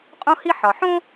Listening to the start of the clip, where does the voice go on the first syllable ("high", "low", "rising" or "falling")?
high